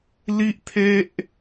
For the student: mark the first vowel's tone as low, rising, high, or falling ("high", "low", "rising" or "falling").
high